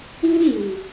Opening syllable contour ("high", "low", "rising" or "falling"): high